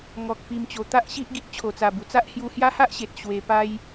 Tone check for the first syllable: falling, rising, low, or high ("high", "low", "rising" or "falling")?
low